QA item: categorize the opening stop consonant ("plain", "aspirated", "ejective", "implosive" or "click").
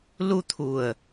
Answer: aspirated